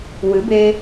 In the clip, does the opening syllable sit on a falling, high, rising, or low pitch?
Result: rising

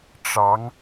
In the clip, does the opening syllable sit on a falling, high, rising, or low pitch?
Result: rising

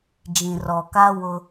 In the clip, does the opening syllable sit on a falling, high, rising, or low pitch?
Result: low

